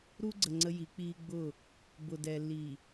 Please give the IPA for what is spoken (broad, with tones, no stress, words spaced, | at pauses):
ɾu˦ɡ͡ǀə˨ ŋ͡ǀə˦ji˨˦k͡piː˦ ɡ͡bʊ˦˨ | bʊ˨dɛ˨lːi˨